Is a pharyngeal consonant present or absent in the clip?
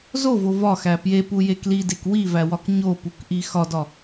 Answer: absent